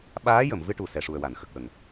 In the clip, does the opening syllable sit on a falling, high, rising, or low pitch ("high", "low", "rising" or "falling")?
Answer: rising